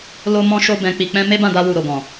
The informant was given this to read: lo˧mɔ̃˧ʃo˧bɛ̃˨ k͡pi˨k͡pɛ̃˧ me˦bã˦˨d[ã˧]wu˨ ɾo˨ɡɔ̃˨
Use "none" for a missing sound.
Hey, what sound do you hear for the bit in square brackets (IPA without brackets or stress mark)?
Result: a˧